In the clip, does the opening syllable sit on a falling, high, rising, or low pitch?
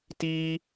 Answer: high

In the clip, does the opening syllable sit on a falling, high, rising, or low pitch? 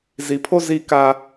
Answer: low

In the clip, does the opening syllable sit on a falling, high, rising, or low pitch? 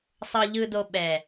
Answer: low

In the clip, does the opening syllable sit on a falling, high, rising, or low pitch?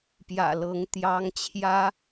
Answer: low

